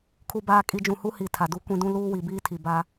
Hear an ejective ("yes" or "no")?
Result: yes